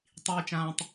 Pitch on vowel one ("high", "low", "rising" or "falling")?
low